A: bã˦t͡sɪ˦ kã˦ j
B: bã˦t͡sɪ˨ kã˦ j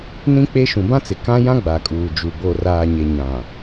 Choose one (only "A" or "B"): B